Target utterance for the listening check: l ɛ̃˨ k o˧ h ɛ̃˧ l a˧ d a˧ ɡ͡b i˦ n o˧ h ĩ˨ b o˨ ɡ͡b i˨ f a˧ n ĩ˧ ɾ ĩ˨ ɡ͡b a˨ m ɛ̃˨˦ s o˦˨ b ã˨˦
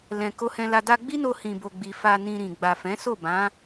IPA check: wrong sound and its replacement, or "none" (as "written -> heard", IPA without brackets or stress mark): m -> f